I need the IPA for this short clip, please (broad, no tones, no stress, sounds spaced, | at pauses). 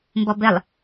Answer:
m b ɔ b ɘ lˠ